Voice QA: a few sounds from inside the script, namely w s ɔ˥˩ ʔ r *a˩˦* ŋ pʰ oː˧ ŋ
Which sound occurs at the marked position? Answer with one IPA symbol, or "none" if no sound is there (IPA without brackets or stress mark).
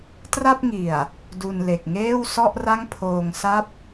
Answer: a˥˩